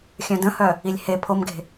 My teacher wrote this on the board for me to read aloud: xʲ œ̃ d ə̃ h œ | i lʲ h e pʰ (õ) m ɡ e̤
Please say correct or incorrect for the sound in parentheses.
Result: incorrect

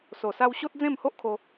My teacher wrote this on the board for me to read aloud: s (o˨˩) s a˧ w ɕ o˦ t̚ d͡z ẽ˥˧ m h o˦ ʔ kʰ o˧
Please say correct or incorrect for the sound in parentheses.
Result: correct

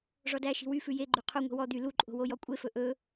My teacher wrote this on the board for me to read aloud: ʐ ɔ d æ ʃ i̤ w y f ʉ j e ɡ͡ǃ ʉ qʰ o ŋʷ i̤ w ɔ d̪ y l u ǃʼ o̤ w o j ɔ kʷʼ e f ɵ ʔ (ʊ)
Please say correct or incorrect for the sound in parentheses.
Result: incorrect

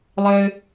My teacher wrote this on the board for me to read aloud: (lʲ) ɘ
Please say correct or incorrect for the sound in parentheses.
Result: incorrect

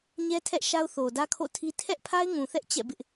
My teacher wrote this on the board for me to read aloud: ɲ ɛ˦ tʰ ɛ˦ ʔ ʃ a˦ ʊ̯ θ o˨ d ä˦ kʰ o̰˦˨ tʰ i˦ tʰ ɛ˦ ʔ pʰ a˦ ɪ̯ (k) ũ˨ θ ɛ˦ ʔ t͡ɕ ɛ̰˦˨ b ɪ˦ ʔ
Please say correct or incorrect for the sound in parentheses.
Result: incorrect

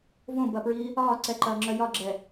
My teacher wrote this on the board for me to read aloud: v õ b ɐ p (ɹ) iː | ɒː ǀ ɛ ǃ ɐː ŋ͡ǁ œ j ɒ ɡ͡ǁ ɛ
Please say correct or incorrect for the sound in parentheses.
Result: correct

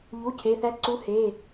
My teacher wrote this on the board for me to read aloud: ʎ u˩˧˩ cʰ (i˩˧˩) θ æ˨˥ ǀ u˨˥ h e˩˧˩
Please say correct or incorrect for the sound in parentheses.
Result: incorrect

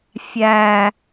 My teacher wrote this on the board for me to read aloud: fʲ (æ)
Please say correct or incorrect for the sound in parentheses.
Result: correct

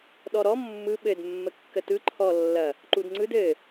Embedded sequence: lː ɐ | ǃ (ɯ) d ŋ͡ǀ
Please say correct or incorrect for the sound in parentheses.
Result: incorrect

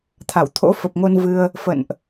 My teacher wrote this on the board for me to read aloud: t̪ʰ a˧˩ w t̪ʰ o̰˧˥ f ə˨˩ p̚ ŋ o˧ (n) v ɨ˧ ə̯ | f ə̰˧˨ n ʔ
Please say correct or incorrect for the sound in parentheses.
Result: correct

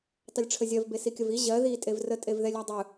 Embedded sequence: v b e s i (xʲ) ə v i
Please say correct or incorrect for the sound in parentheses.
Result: incorrect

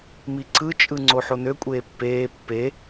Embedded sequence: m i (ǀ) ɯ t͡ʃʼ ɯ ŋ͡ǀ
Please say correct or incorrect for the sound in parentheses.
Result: correct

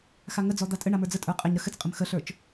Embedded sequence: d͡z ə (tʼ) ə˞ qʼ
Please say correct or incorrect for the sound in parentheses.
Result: correct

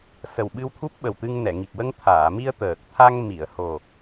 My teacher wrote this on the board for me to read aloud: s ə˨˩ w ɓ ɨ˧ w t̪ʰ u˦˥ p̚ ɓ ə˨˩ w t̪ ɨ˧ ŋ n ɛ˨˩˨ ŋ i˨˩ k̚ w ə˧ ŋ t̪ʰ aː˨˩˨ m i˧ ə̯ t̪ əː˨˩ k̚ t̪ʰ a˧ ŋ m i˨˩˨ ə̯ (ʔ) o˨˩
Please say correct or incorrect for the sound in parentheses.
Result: incorrect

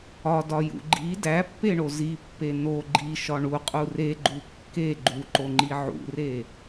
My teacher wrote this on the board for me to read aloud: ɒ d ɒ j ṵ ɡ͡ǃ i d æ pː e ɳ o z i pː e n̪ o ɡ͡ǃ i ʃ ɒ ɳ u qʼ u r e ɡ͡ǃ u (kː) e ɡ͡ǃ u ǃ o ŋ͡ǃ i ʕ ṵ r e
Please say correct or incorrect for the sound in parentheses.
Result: correct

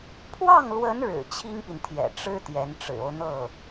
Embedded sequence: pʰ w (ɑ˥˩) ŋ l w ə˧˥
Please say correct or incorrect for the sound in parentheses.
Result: correct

